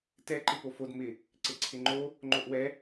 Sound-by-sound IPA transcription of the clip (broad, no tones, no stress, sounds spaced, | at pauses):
t ɛ ǃ ɪ p o f o d m ɪ | ǀ ɪ ǀʰ ɪ ŋ͡ǃ o | ŋ͡ǃ o ʔ w ɛ